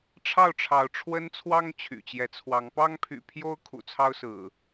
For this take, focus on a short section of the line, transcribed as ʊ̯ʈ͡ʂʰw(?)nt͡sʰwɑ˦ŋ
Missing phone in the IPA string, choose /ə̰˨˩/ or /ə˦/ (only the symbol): ə˦